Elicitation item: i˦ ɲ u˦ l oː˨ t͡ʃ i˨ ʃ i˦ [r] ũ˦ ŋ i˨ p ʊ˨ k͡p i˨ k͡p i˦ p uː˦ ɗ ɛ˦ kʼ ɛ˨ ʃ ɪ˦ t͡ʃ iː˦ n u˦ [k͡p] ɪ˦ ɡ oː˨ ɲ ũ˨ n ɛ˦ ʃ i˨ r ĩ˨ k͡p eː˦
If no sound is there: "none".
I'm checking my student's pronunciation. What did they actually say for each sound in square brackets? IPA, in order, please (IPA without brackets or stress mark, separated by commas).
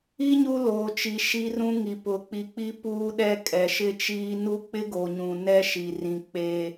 r, k͡p